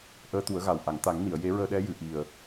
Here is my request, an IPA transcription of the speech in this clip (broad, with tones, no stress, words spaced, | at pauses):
ʔəː˧˥t̪u˨˩˦ə̯ɣa˨˩w ʔa˨˩˨ŋt̪a˨˩˦ŋni˨˩˨ə̯ je˧˥ɹəː˧ɗɛ˧˥ jɨ˨˩˨ʔi˨˩ə̯